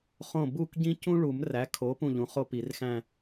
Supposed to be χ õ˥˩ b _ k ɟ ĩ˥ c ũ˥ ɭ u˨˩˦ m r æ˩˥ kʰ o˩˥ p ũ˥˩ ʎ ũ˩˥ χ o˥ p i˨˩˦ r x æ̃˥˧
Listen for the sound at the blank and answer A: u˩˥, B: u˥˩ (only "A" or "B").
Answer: B